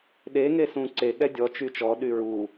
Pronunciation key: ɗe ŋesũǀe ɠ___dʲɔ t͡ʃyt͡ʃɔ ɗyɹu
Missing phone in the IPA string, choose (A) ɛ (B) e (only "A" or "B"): A